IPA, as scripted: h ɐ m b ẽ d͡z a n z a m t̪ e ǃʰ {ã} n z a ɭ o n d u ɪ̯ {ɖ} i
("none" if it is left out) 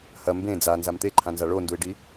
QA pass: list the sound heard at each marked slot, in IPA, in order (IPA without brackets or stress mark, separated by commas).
ã, ɖ